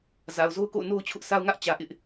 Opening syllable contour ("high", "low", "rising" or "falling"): low